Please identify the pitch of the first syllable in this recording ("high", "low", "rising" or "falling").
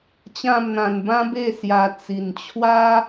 falling